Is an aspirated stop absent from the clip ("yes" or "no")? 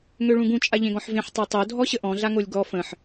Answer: yes